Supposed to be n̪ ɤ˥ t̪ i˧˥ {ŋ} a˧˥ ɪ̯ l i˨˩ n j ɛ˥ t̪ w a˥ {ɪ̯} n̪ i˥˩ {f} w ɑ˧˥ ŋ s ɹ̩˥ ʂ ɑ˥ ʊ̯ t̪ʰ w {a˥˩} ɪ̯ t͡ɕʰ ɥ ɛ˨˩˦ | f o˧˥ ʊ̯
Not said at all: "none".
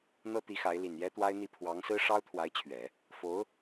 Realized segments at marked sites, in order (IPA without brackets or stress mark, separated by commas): x, ɪ̯, pʰ, a˧˥